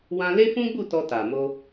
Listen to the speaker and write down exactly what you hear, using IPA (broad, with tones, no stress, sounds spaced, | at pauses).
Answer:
w ã˧ l e˦ f ũ˦ ɡ͡b u˦˨ t ɔ˧ t a˨ m o˧